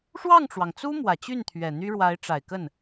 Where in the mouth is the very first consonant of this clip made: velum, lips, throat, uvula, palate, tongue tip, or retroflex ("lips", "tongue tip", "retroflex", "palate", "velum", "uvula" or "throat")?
retroflex